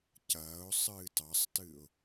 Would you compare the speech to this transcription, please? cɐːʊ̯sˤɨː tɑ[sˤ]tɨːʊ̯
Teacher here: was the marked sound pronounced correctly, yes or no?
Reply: yes